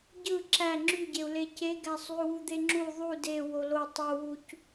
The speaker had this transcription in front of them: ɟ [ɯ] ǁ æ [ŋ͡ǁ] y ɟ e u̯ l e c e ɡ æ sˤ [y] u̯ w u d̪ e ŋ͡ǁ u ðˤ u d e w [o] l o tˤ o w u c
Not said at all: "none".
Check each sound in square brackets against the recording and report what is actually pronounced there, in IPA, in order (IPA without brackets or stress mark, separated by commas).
ɯ, ŋ͡ǁ, y, o